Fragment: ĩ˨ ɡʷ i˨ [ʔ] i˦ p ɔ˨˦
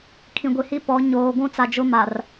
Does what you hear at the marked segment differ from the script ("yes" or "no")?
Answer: yes